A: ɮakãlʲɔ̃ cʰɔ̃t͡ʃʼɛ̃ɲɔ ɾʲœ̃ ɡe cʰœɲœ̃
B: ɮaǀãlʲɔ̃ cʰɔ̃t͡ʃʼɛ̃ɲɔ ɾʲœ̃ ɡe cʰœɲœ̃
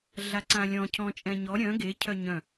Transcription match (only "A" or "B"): B